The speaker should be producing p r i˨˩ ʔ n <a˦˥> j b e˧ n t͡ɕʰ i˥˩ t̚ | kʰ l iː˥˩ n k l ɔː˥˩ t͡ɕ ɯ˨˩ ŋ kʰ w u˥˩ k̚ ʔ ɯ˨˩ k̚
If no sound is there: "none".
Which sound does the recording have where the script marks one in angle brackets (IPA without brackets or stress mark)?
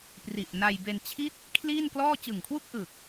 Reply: a˧